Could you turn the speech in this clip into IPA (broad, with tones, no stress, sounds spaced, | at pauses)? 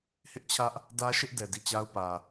h ɪ˦ ʔ t͡ɕʰ ä˦ ʔ | d ä˦ ʃ ɪ˦ ʔ d ɛ˨ d i˦˨ t͡ɕ a˦ ʊ̯ p ä˨